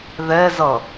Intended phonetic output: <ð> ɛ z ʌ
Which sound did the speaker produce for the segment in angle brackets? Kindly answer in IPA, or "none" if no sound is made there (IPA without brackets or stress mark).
ð